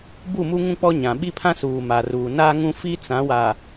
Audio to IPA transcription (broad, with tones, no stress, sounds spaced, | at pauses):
b u˦˨ m u˦ ŋ ũ˦ k͡p ɔ˦ ɲ ã˨ ɓ i˦ pʰ ã˦ s uː˨ m a˨ r uː˨ n aː˦ ŋ ũ˦ f i˦ t͡s ã˨˦ w a˨